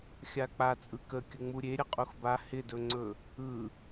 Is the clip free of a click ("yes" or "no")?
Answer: no